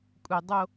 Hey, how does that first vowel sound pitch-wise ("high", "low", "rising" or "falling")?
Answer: low